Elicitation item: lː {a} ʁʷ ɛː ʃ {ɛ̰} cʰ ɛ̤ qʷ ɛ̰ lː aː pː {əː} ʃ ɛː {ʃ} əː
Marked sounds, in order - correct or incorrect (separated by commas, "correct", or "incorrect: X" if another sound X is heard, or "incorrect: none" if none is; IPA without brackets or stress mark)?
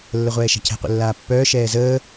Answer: incorrect: ə, incorrect: ɛ̤, incorrect: œː, incorrect: z